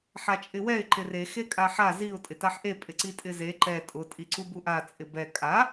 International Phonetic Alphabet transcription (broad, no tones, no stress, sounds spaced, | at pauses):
ħ a t͡ʃʼ ɪ w ɛ ɪ̯ ǃ ɪ r e x e kʼ a ħ a z i ʊ̯ tʼ ɪ t a ħ ʔ e pʼ ɪ ǀ i tʼ ɪ z e ǃ ɛ tʼ ʊ tʼ i ǀ u b u ʔ a t͡sʼ ɪ b ɛ kʼ a